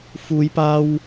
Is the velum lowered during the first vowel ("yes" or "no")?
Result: no